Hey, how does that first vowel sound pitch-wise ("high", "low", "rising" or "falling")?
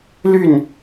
falling